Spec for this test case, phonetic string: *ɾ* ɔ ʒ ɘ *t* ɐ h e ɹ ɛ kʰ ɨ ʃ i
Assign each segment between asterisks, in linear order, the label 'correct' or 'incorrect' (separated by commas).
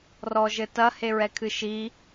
incorrect, correct